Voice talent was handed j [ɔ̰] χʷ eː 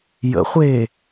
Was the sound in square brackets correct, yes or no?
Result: no